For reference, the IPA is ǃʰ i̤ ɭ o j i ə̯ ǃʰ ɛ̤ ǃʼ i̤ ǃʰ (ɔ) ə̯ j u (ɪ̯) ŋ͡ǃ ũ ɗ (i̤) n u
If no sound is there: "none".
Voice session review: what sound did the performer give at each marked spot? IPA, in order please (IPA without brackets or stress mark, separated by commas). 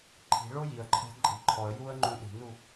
ɔ, ə̯, i̤